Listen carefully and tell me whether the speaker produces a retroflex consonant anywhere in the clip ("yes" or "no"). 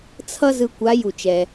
no